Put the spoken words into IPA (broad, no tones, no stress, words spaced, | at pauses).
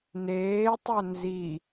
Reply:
neːtˤœ nzi